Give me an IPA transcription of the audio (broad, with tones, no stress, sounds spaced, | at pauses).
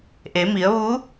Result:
ʔ e˩˧ m i˩˧ ə̯ ʋ u˧˥